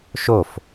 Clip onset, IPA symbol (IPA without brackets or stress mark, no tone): ʃ